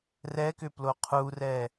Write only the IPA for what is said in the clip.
r ɛ k ʏ p l o qʰ u r ɛ

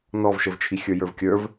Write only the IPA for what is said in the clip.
n ɔ v ʃ ə v t͡ʃʰ i xʲ ə˞ j ə˞ v kʲ ə˞ v

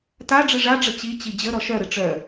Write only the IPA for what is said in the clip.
t a ɖ͡ʐ ɨ ʐ a ɖ͡ʐ ə t͡ɕ i t͡ɕ i d͡ʑ ə ɾ ɔ ʃ œ ɾ ɨ ʈ͡ʂ œ

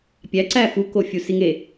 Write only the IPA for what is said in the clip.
pʲ æ ǀ æ f u k o fʲ u s i ŋ e

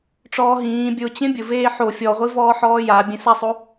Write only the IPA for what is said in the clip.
ʈ͡ʂ ɔː ɦ ĩː bʲ ʊ t͡ɕ ẽ bʲ ʊ v eː ħ o fʲ ɔ ʁʷ i v ɔː ħ ɔː j a bʲ ẽ s a sˤ o

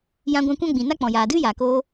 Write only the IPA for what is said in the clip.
j ã˧ ɡʷ ã˧ kʷ ã˦ ɡ͡b ĩ˨ n a˦ k͡p ɔ̃˨ j aː˨ d ɨ˦ j aː˨ k oː˧

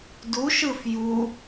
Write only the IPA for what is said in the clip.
d u ʃ ɯ f j u

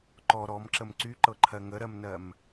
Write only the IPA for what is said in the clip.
ǃ ɔ ɾ ɔ m ǁ ə m ǀ y ǃ ɤ ǃʰ ɜ ŋ ə ɾ ɜ m n ɜ m

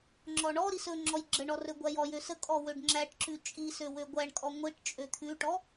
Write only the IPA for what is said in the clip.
ŋ͡ǁ ɔ ɳ ɔ ɾ i s ɵ ŋ͡ǁ ɔ j ɡ͡ǁ ə ɳ ɔ r ɵ ɡʷ æ j ɔ j ø s ə kʼ ɔ w ø ɖ ŋ͡ǁ æ ʈ ǁ ʉ t͡ʃʼ i s ø w ø ɡʷ æ ɳ kʼ ɔ ŋʷ i ʈ t͡ʃʼ ø t̪ʰ ʉ ʈ ɔ

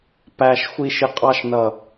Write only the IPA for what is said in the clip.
p æ ʃ xʷ i ʃ ɪ qʼ ɑ ʃ n ʌ

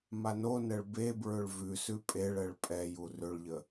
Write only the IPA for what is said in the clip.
m a n o n ɛ ɭ b e b ɹ ʏ ɭ v ʉ s ʉ pʼ e ɭ ɛ ɭ pʼ ɛ j u r ʏ ɭ ʎ ə

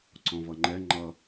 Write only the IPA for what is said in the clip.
ǀ ɔ̃ v ʌ ŋ͡ǃ ɛ ŋ͡ǃ ʌ

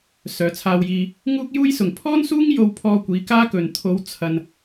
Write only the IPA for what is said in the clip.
s œː˨ t͡sʰ aː˧ w j iː˧ | ŋ uː˥ k̚ j uː˥ j s ʊ˨ ŋ pʰ ɔː˥ n s uː˥ ŋ j o˧ w pʰ ɔː˧ kʷ iː˨˧ k aː˥ k ɵ˨ n t̪ʰ o˨˧ w t͡sʰ ɐ˧ n

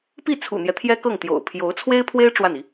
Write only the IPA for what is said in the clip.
p i˥˩ t͡sʰ ṵ˨˩ n̪ j ɛ˦ t̪ʰ j ɛ˥ k ɤ˥˩ ŋ t̪ j o̰˨˩ ʊ̯ pʰ j o˧˥ ʊ̯ t͡sʰ w e˥ ɪ̯ pʰ w e˥ ɪ̯ ʈ͡ʂ w a˥˩ n i˧˥

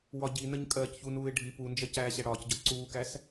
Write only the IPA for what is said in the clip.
w ɒ ɟ i n ə ɲ kʼ ɜː c ç u n uː ɪ̯ ɖʱ i p u n d͡ʒ ɜ c æː ɕ æ ɽ ɒː c ɟ ɒ ǀ uː k æ s

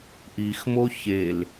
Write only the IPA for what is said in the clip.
ʔ i x m o ç e l

